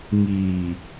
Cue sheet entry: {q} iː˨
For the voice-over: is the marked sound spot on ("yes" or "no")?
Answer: no